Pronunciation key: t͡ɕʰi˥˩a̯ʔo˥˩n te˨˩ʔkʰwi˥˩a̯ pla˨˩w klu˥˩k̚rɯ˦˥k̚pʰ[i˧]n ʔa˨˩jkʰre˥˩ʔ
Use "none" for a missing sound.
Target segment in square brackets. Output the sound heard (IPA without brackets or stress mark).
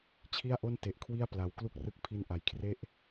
i˧